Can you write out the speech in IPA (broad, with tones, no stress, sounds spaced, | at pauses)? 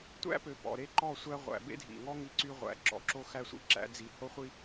tʷ æ̰˦ p ø˨ p ɔ̰˨ ɾ e˦ ǃ ɔ˦˨ sʷ æ˦ ʁʷ æ̰˨ b ḛ˦ dʱ ḭ˨ ŋ ɔ˦ ŋ i˦ ǀ y˦ ʁʷ æ̰˨ ǁ ɔ̰˨ ǁ o˦ x æ˦ sʷ ḭ˦ ǁ æ̰˦ d͡z i˨˦ h o˦ χʷ i˦